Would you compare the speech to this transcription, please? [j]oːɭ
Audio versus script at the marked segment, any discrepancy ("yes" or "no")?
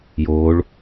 no